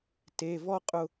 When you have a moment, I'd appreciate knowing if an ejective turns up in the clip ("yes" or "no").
yes